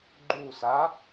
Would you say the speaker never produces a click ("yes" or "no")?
no